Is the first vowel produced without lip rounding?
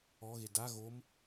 no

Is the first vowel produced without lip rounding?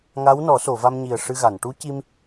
yes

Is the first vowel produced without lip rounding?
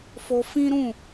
no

